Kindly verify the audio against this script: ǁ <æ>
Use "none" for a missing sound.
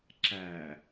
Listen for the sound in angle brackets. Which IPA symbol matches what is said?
æ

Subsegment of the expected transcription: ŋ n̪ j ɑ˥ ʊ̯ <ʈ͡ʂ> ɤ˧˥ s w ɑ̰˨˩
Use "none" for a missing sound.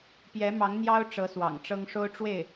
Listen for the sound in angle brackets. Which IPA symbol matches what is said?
ʈ͡ʂ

